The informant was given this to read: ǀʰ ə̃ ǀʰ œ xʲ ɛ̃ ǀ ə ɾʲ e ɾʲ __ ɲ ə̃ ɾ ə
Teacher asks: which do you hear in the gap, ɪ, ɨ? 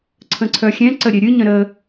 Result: ɨ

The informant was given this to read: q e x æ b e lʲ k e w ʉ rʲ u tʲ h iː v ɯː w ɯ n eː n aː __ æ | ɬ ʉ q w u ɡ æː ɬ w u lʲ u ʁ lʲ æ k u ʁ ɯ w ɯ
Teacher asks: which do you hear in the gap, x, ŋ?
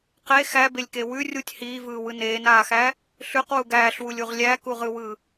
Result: x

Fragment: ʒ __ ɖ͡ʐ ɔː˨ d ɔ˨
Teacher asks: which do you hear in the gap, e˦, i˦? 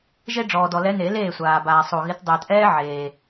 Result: e˦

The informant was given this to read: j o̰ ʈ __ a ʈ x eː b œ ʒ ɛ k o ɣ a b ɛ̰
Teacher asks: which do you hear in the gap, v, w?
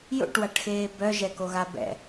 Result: w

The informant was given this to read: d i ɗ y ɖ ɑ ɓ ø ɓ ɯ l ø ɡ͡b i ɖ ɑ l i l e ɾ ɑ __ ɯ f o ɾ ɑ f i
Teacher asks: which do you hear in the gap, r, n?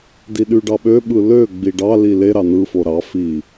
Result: n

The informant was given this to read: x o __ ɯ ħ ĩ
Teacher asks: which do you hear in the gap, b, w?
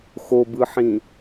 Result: b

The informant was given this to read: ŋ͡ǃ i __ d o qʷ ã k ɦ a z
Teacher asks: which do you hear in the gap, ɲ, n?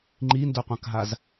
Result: n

